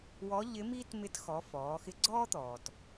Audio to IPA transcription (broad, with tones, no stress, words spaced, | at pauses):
wɔ˧˥ ʎɪ˧˥miː˥tmɪ˧˥txɔ˩˧ fɔː˩˧xɪ˧˥ ɡ͡ǀɔː˥t̪ɔː˩t